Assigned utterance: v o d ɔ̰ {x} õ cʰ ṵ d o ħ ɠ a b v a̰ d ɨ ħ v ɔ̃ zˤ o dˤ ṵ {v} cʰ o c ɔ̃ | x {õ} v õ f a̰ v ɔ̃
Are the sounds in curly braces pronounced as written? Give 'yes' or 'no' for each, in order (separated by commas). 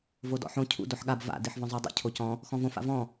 no, no, no